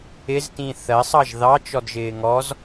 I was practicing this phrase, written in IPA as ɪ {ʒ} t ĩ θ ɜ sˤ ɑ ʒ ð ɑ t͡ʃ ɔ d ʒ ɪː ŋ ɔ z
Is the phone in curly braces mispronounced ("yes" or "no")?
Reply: yes